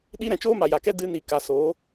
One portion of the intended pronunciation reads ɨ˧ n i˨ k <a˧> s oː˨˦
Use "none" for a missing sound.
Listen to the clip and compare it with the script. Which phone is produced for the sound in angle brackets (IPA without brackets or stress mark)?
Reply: a˨